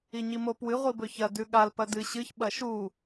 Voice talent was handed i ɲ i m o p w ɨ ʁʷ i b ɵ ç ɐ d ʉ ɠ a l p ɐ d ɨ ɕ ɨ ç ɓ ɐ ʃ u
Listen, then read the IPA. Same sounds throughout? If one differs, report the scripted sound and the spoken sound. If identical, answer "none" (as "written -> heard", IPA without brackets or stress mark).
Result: none